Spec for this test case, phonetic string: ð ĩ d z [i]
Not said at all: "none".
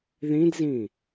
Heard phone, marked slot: ĩ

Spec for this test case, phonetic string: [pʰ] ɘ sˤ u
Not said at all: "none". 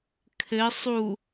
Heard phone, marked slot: kʰ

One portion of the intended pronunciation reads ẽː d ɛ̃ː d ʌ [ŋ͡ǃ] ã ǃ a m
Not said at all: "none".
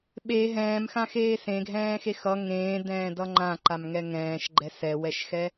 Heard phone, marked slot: ŋ͡ǃ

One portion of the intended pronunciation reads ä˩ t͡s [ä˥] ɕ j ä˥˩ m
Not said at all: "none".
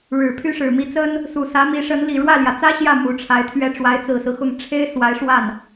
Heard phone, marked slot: ä˥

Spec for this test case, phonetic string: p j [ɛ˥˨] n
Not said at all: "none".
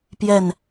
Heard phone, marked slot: ɛ˨˩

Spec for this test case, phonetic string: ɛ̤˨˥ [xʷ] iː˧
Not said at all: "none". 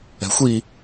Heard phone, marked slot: xʷ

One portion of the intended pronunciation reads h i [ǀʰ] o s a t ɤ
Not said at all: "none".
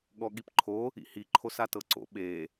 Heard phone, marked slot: ǃʰ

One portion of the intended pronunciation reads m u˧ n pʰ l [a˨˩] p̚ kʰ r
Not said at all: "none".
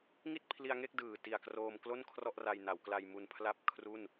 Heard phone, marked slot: a˥˩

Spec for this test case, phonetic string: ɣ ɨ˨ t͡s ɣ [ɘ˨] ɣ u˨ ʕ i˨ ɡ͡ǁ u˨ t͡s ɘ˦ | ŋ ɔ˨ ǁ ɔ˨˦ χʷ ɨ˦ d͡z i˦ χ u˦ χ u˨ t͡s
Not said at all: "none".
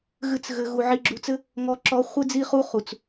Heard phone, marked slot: ɘ˨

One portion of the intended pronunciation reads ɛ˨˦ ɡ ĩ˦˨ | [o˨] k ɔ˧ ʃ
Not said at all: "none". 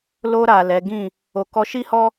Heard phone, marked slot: o˨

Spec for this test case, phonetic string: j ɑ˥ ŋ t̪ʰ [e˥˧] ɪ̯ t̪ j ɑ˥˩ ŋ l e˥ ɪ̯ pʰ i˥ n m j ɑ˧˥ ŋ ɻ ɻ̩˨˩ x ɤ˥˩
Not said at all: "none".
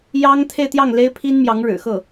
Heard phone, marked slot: e˥˧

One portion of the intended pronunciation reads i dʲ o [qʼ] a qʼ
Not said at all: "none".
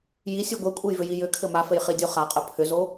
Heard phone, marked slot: χ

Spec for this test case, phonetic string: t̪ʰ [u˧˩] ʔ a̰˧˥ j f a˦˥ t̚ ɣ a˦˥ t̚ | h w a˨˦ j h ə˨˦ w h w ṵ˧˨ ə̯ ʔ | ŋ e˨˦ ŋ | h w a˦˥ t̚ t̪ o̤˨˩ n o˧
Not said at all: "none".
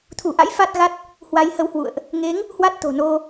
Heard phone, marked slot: u˧˩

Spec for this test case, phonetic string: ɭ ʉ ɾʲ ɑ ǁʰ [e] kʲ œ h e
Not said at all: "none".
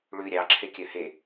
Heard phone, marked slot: e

